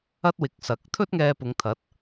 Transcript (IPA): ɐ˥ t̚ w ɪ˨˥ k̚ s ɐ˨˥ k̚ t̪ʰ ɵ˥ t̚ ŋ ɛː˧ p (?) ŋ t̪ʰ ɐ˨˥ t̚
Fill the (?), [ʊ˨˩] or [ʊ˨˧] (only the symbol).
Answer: ʊ˨˧